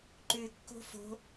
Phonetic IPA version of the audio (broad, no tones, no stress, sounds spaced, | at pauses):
ǃ ʉ kː o̤ f o̤